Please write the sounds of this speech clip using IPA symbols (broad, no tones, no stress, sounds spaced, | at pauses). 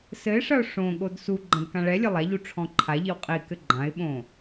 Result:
s ɘ ɪ̯ ʂ ɐ ʊ̯ ʂ õ ɠ o d s u ɡ͡ǃ ɐ̃ d k ã ɭ ɛ lʲ ɘ lˠ a ʎ u ʈ͡ʂʰ ɔ̃ ǃʰ a ʎ i w qʼ i k ɘ ɡ͡ǃ ã ɪ̯ ɓ õ